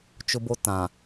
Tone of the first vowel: high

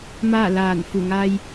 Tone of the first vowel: falling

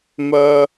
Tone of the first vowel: high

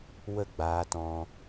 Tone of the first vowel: falling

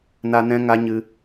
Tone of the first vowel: high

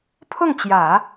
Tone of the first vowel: falling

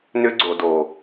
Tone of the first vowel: high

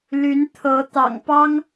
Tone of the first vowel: rising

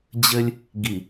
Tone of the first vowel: high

